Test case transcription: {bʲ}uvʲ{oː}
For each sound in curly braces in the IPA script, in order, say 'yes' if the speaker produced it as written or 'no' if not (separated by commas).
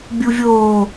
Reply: yes, yes